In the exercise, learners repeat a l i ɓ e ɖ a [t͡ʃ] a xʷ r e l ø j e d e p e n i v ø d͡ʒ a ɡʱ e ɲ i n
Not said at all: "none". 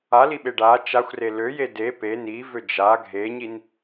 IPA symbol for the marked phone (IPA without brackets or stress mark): t͡ʃ